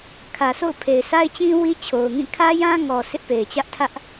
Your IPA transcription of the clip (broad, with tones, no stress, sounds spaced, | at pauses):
kʰ ä˨ sʰ o̰˦˨ ʊ̯ pʰ e˨ ɪ̯ s a˦ ɪ̯ t͡ɕ ĩ˦ w i˦ t͡ɕʰ o˨ ʊ̯ ŋ ĩ˦˨ kʰ ä˦ j ã˦ ŋ ɔ˨ sʰ ɪ˦ ʔ p e˨ ɪ̯ t͡ɕ ä˦ ʔ tʰ ä˦ ʔ